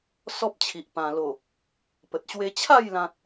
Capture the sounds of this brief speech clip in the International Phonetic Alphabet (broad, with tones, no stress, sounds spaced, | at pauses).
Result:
s ɔ˦ p̚ t͡ɕʰ i˨ ʔ p ã˨˩ l o˨˩ | p ə˨ t̚ ɕ w e˧ t͡ɕʰ a˥˧ j l ã˦ t̚